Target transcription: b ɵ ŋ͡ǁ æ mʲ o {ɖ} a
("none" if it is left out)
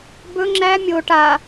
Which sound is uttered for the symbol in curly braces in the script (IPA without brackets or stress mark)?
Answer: ʈ